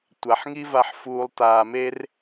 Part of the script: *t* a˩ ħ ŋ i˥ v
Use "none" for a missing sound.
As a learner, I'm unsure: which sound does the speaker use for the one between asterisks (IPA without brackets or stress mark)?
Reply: tʷ